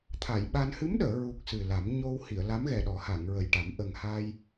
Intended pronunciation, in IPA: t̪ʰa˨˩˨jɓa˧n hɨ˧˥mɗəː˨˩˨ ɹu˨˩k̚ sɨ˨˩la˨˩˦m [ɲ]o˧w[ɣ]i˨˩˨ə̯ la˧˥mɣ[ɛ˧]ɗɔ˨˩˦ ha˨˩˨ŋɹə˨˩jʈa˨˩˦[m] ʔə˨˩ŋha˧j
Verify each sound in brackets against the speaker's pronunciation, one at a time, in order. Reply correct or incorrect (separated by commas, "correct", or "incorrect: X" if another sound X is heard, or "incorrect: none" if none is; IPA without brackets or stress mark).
correct, incorrect: h, incorrect: ɛ˨˩, correct